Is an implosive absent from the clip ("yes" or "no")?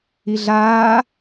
yes